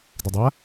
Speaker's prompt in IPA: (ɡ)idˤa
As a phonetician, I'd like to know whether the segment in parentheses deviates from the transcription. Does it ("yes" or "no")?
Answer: yes